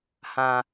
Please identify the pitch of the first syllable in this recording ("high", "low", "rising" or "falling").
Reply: low